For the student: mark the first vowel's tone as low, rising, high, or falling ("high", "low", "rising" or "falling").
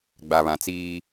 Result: low